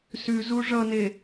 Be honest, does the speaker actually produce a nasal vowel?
no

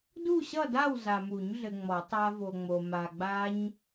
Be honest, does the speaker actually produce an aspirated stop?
no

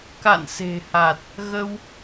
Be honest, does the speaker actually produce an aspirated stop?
no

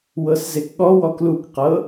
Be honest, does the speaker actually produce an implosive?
yes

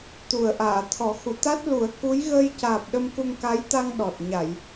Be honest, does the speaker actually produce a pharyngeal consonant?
no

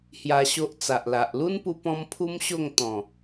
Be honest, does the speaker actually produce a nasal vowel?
yes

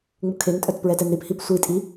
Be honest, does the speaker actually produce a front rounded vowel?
yes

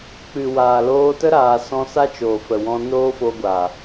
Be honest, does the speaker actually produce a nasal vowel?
yes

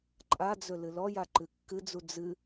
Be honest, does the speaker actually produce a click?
yes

